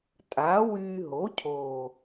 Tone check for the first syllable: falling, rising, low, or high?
rising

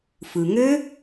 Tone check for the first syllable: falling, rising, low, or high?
low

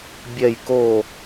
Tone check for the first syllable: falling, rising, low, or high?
falling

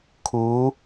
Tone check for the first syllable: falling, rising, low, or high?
rising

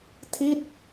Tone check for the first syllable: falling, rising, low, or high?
falling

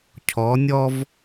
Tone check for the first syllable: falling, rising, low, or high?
rising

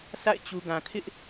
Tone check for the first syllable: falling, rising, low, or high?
falling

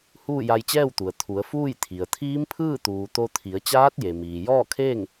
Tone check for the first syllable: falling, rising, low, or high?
falling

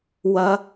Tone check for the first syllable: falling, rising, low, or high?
high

